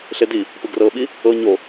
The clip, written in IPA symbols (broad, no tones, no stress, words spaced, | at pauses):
ɬedi | pɯɡrɤːɓi | ɤ ɲo